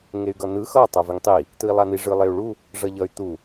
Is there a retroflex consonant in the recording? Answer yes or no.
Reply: yes